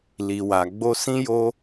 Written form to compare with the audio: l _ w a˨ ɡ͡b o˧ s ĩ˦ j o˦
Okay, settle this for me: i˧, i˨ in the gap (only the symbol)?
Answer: i˨